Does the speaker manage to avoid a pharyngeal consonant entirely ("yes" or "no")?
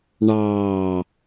yes